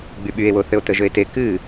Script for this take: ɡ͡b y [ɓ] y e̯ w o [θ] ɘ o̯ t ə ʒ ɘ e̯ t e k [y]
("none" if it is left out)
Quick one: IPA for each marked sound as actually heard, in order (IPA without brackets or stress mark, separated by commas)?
ɓ, θ, ɨ